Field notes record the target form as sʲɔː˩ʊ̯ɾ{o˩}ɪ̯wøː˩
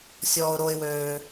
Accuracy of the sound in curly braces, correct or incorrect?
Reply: correct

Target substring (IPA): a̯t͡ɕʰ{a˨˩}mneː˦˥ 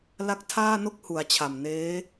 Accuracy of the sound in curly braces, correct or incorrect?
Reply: correct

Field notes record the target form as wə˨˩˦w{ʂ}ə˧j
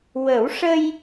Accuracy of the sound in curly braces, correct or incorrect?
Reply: correct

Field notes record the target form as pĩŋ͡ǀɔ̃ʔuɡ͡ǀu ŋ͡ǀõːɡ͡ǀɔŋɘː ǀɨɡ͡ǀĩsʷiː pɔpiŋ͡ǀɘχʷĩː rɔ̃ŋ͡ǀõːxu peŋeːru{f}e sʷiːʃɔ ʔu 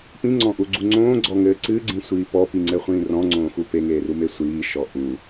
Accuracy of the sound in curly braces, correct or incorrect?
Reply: incorrect: m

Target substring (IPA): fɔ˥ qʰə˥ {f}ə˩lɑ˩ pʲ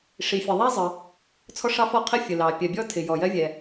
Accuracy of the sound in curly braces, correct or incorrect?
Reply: incorrect: fʲ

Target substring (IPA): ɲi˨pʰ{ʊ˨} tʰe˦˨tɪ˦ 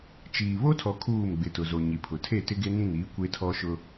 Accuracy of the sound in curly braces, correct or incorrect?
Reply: correct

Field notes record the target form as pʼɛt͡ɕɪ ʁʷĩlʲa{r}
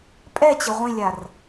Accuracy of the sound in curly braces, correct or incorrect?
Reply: correct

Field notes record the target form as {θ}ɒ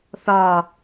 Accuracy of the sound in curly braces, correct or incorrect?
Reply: correct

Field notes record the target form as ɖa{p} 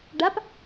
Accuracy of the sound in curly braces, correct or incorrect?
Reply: correct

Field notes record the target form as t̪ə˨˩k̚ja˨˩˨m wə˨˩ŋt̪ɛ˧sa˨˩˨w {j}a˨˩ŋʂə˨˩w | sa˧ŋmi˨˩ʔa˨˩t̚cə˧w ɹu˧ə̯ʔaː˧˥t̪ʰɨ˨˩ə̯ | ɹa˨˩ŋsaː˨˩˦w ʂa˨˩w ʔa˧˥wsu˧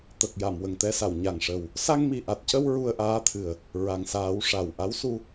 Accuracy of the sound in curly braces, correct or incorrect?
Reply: incorrect: ɲ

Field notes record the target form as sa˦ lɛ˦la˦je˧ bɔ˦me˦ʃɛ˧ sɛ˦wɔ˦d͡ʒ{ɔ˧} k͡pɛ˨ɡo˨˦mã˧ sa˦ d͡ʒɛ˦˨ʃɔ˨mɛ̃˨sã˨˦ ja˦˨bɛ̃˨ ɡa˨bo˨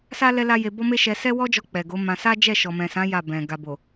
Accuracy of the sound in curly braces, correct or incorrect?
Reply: correct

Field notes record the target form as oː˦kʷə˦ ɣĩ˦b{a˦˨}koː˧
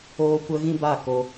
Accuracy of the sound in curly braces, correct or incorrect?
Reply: correct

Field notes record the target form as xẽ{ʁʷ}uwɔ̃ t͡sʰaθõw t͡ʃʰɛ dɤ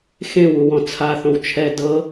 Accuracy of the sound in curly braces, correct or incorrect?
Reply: incorrect: w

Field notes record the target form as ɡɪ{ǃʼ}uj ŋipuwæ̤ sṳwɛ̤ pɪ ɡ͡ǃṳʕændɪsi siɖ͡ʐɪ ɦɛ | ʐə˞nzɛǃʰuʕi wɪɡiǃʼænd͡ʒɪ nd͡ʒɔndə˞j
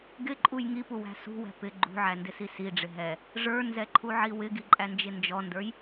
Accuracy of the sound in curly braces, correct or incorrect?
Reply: correct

